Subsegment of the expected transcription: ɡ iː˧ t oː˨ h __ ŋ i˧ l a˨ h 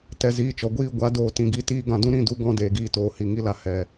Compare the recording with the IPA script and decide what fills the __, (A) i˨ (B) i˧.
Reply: A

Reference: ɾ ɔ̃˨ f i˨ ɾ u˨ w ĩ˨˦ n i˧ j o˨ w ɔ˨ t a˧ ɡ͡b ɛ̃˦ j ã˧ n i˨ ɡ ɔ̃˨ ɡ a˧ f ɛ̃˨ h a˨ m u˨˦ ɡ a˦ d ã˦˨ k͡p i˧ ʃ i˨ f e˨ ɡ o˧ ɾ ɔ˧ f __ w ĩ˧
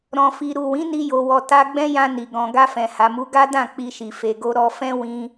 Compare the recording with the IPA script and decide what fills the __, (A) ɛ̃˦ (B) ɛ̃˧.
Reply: A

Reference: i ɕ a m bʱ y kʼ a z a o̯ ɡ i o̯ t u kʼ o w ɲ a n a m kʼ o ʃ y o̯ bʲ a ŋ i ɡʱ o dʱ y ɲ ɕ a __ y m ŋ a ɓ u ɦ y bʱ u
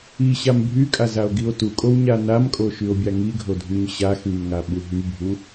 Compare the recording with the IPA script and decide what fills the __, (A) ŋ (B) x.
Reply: B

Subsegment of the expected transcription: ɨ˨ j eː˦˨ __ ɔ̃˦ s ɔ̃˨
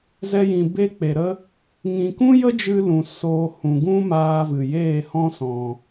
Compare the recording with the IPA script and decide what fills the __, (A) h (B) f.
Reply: A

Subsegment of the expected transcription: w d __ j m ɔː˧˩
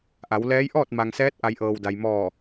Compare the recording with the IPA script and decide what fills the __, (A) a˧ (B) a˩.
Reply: B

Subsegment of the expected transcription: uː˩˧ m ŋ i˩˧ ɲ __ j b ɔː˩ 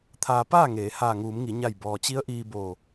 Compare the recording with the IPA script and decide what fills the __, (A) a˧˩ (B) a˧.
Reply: A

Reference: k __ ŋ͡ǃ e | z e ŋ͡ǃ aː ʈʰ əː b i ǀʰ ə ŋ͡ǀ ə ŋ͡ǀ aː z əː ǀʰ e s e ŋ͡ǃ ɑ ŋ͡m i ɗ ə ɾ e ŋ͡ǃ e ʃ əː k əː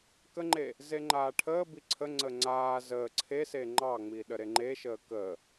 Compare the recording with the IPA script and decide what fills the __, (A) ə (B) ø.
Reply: A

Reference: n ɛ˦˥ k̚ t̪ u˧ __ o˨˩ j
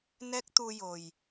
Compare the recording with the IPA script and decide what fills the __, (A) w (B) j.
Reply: B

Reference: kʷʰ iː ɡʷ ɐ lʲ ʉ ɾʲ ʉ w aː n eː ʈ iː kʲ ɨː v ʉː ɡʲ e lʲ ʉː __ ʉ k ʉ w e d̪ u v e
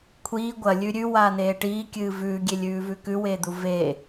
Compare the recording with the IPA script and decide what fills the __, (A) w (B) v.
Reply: B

